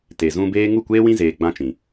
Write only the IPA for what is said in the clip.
t e˨ z ũ˧ b eː˦ ŋ u˦˨ kʷ eː˦ w ĩ˦ z eː˧ ɡ͡b ã˦ t͡ʃ ĩ˨

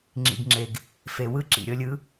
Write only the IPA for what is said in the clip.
ŋ͡ǁ ḭ˨ ɡ ŋ͡ǁ e˨ ɡ | f e˨ w ɯ˦ ǁ ḭ˨ ɾʲ ɤ˧ lʲ ɯ˨˦

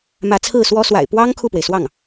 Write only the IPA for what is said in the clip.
m ä˧˥ t͡sʰ ɹ̩˥˩ s w ɔ˥ s w a̰˨˩ ɪ̯ p w ɑ˥ ŋ kʰ u˥˩ p w e˩ ɪ̯ s w ɑ˥˩ ŋ

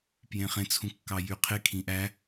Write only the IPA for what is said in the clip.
p j ẽ χ ẽ t͡sʰ ũ kː ɑ j y qʰ e kʰ ĩ ʔ æ

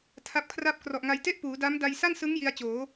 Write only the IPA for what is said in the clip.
tʰ a˦˥ p̚ kʰ r a˥˩ p̚ k r ɔ˨˩ ʔ ŋ a˧ j t e˥˩ ʔ p uː˩˦ d a˦˥ m d a˧ j s a˥˩ n s ɯ˦˥ ŋ j i˦˥ a̯ t͡ɕ oː˩˦

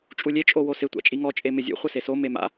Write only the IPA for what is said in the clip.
t͡ʃʼ u lʲ e t͡ʃʼ o w o s ɪ tʷ a̰ t͡ʃʼ i ŋ ɔ t͡ʃʼ e m ɪ zʲ ṵ χʷ ɪ s e s o m e m a̰

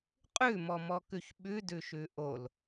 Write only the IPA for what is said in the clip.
qʼ ʉ m ɔ m ɔ k ʉ ç ɓ ʉ d ʉ ʃ ʉ ʔ o l

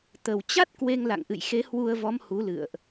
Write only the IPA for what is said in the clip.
t̪ ə˨˩ w t͡ɕ a˦˥ t̚ k w e˧ ŋ l a̰˧˨ ŋ ʔ ɨ̰˧˨ j x e˨˦ h w u˧ ə̯ v ɔ˨˦ m h u˨˦ l ɨ̰˧˨ ə̯ ʔ

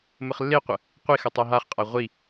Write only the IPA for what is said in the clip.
m ə χ lː e qʷ ə | qʷ i x ʌ tˤ a ɦ a χ qʼ a ʁʷ i

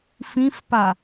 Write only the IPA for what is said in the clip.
f ĩ f p a

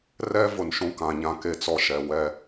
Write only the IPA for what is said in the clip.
r ɛ˦ v ʊ˨ n ʃ ũ˦ k ã˨ ɲ ã˦ k e˦ t͡s ɔ˦ ʃ ɛ˨ w ɛ˦

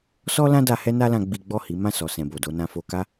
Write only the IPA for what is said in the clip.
s ɔ˦ l ã˦ d a˧ h ɛ˦ n a˦ l ã˧ ɡ͡b i˦ ɡ͡b ɔ˦˨ h i˨˦ m ã˦˨ s ɔ˨ s ɛ̃˨ b o˨ d o˧ n ã˧ f o˧ k a˦

